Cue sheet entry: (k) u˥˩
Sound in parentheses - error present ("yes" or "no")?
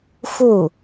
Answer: yes